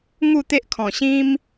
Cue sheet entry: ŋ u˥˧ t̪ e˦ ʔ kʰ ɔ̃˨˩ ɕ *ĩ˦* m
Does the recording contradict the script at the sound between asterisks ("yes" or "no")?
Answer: no